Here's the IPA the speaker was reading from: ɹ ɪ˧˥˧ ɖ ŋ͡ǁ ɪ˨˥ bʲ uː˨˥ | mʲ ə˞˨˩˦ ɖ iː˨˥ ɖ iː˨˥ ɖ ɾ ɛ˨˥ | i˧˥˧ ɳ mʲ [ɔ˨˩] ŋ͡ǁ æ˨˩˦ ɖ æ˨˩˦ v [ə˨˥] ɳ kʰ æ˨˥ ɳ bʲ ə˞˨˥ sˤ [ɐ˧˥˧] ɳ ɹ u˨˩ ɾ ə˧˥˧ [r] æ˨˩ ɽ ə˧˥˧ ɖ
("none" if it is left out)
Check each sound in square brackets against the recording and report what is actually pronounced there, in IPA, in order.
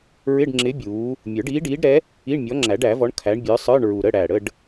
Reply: ɔ˨˥, ɔ˨˥, ə˞˧˥˧, ɽ

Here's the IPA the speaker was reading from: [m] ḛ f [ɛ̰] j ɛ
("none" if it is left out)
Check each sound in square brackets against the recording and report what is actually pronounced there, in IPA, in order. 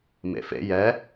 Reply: m, ḛ

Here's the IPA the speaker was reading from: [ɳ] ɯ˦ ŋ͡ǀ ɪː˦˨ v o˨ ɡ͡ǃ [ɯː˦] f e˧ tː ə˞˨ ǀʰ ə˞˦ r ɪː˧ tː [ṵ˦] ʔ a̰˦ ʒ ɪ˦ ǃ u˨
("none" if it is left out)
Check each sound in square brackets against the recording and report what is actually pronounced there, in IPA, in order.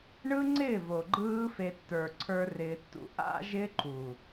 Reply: ɳ, ɯː˦, ṵ˦

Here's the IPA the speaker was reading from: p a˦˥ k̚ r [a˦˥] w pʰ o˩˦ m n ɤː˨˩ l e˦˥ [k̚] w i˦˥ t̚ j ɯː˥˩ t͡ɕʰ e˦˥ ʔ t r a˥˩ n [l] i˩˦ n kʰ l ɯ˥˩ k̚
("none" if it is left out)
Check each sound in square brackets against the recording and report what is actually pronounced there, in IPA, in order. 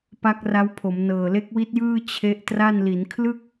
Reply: a˦˥, k̚, l

